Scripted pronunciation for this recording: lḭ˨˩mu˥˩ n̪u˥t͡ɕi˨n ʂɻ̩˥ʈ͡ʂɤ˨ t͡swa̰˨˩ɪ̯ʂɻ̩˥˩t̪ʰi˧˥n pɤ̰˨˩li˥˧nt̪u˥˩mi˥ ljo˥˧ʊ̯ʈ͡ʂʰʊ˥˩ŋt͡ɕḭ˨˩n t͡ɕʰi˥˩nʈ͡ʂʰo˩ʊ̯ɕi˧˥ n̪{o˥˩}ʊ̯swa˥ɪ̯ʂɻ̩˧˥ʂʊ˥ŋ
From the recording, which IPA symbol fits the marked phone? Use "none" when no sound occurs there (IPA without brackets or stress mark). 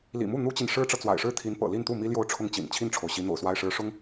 o̰˨˩